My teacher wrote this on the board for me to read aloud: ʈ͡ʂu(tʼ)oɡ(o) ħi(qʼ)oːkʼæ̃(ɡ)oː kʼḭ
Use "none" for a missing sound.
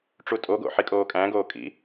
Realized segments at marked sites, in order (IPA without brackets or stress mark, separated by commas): tʼ, o̰, kʼ, ɡ